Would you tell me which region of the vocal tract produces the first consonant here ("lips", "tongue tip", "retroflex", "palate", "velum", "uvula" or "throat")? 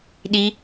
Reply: tongue tip